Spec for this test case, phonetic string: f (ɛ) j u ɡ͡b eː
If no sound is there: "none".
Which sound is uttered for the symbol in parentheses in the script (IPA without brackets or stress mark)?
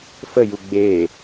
ə